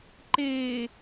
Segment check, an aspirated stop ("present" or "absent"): absent